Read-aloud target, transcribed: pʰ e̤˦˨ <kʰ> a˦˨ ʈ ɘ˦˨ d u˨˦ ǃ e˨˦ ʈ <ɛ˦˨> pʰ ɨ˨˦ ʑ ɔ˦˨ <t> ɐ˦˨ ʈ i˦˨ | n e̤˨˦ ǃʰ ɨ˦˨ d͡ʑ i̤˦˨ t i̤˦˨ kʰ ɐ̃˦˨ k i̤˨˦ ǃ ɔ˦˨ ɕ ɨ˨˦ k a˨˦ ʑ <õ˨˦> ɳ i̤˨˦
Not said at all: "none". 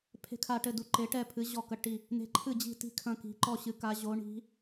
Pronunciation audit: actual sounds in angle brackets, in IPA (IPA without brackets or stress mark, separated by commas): kʰ, ɛ˦˨, k, o˨˦